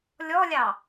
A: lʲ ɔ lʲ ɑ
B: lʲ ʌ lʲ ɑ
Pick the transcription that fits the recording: A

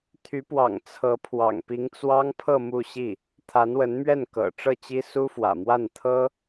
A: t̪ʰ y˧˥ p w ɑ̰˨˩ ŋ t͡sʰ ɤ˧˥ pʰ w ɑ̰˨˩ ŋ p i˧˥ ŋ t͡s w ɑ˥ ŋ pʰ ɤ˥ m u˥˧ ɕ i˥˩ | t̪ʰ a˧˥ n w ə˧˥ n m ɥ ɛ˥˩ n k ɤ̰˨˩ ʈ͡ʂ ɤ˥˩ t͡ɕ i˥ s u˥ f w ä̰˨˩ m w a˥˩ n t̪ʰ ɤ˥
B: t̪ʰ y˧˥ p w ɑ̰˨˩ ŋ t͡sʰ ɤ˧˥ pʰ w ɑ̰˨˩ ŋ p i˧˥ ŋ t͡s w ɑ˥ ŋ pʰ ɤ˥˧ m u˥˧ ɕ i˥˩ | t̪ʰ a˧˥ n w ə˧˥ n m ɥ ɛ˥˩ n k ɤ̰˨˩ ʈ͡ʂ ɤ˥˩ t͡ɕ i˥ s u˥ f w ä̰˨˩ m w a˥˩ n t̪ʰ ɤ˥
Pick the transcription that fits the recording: B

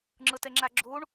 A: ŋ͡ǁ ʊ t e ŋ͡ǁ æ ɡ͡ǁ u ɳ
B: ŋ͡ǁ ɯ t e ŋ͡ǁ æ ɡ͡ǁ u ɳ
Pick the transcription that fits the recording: B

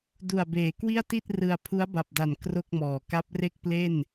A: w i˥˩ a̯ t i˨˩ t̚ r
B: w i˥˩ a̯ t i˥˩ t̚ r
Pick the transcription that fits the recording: B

